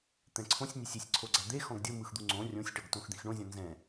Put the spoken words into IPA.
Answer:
t̪ ɛ̃ ǀʰ õ sʲ nʲ e sʲ i sʲ ǀʰ o ɡ͡ǀ a d̪ e x ɔ̃ ɡ dʲ ɤ m ɯ x d̪ u ŋ͡ǀ õ rʲ õ sʲ ʈ ɤ ɡ t õ x d̪ ĩ x ɳ õ zʲ ɔ̃ n z ɛ̃

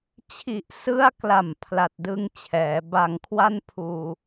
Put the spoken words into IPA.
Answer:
t͡ɕʰ i˨˩ ʔ s ɯ˦˥ a̯ k l a˨˩ m pʰ l a˨˩ t̚ d ɯ˦˥ ŋ t͡ɕʰ ɛː˩˦ b a˧ ŋ kʰ w a˥˩ n pʰ uː˧

